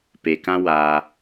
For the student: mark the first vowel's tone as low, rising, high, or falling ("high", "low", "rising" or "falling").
low